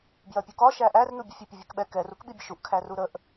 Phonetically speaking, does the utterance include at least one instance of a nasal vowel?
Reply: no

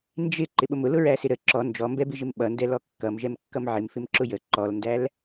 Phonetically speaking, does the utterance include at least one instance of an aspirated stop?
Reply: no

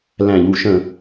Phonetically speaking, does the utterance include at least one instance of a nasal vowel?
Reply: yes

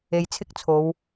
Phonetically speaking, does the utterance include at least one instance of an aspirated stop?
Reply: yes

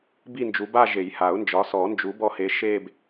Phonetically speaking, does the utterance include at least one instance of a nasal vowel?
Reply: no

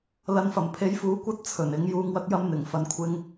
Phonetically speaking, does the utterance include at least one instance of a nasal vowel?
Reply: no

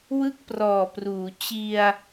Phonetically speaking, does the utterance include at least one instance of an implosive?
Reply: no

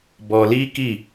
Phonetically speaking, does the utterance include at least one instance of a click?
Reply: no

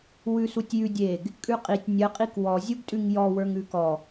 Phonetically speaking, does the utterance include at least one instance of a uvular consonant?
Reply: yes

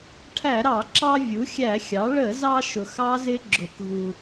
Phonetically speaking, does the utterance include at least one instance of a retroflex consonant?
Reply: yes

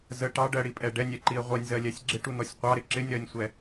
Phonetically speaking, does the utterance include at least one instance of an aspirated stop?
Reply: no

